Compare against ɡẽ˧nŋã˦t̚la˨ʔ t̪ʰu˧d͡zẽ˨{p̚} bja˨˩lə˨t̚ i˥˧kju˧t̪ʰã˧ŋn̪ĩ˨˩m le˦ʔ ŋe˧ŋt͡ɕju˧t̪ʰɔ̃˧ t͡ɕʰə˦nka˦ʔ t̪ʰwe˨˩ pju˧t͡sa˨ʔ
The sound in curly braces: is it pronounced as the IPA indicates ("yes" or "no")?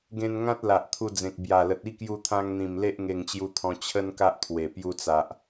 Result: no